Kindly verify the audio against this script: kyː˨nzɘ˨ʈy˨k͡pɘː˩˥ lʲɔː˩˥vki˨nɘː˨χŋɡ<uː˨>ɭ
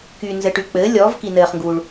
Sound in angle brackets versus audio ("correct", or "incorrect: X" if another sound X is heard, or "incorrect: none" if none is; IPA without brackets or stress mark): correct